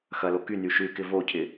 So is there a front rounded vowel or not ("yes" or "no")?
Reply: yes